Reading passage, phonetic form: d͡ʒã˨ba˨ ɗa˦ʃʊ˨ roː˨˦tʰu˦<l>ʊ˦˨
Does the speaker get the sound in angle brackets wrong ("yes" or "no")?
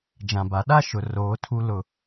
no